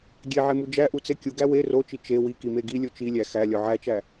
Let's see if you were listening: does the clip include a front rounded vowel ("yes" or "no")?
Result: no